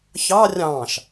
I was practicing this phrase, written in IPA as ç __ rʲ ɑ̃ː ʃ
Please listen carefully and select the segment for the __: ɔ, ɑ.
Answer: ɑ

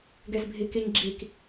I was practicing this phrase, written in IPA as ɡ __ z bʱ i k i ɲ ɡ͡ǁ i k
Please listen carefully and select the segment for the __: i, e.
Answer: e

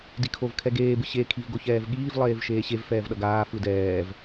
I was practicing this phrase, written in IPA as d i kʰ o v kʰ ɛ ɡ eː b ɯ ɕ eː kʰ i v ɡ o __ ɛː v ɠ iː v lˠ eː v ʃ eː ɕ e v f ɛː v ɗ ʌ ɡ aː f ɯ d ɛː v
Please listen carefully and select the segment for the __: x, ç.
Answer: ç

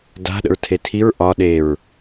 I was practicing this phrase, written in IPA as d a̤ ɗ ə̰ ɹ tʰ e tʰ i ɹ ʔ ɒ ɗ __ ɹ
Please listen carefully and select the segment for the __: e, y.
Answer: e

